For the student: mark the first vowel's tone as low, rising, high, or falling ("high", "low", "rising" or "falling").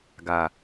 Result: low